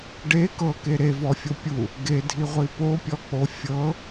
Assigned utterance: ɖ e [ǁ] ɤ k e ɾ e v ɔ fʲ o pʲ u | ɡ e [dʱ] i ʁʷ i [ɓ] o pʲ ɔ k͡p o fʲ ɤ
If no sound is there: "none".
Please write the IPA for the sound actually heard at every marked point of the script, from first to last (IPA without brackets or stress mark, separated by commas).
k, dʱ, p